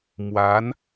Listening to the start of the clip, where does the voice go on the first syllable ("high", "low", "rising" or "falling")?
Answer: rising